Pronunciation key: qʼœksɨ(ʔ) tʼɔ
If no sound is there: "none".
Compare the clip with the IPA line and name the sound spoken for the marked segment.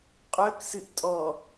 ʔ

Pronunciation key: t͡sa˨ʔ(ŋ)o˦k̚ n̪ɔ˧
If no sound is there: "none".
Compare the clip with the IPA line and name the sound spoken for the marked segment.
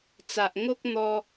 ŋ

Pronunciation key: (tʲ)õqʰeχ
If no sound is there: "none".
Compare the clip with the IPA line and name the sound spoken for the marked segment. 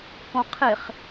k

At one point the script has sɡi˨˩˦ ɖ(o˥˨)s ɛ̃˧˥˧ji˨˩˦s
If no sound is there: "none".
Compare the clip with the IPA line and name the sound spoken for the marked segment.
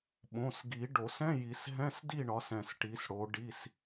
o˨˩˦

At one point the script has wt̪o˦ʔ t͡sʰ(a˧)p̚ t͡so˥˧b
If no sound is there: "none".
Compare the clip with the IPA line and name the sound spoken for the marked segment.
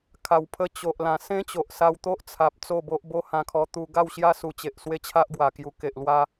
a˨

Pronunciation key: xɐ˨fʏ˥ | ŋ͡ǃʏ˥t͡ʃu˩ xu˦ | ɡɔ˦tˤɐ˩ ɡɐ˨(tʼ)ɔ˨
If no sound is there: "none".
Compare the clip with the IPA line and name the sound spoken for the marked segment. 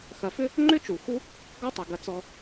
t͡s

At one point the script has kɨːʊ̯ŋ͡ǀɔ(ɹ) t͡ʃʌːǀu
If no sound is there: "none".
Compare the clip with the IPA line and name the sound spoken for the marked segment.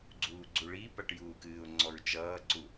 ɹ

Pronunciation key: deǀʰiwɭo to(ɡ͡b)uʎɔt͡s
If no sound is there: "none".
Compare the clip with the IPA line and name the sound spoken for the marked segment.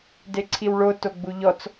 ɡ͡b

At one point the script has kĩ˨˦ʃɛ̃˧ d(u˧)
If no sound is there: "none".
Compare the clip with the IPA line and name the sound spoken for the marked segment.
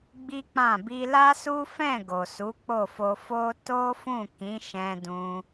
ũ˧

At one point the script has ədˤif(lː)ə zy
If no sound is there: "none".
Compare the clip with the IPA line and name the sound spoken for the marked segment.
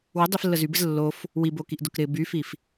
lː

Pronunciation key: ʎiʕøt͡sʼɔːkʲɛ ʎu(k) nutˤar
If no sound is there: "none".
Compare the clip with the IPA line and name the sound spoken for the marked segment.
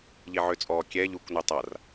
k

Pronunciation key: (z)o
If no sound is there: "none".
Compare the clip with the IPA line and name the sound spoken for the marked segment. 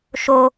ʃ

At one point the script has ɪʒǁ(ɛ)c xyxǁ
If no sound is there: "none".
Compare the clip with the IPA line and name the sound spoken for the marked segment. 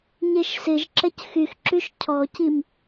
ɛ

